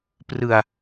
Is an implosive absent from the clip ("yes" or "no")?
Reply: yes